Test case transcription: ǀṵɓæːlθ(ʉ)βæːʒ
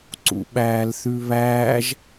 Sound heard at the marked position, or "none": ʉ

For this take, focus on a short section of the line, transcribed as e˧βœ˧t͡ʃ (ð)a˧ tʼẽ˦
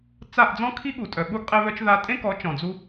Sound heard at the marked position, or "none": ð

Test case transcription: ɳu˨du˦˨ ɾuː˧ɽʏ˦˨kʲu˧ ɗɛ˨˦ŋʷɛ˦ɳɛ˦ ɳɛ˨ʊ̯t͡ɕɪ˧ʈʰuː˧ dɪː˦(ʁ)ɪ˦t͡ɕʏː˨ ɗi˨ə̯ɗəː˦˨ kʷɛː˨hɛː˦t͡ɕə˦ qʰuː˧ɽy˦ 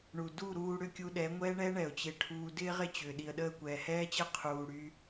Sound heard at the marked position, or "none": ʁ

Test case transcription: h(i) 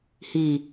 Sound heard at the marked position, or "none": i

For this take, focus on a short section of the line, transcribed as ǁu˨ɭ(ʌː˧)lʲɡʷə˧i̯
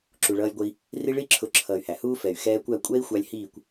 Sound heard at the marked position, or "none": ʌː˧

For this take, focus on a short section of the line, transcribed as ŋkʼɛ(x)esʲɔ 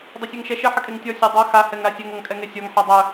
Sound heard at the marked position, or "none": ŋ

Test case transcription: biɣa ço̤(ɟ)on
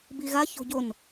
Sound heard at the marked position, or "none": ɟ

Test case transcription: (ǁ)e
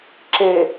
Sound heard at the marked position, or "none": ǁ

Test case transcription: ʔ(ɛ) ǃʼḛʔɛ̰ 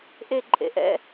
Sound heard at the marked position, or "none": e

